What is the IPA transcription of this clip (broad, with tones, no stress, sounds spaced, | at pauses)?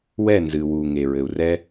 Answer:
w ɛ˦˨ n z ɨ˨ w u˨ ŋ e˨ ɹ ɘ˨ u̯ r ɛ˦